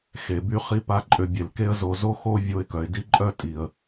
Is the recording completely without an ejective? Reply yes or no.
no